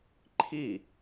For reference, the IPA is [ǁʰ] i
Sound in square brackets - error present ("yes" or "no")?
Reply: yes